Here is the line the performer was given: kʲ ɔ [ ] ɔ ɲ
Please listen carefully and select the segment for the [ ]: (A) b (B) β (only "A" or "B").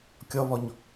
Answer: B